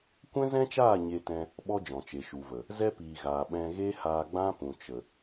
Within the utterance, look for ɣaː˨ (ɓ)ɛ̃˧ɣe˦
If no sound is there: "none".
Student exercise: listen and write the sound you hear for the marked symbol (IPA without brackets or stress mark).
ɓ